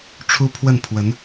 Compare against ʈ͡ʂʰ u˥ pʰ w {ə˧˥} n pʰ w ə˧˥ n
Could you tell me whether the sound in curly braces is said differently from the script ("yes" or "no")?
yes